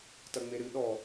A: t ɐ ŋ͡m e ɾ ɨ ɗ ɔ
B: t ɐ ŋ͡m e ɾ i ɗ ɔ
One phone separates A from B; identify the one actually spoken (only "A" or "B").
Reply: A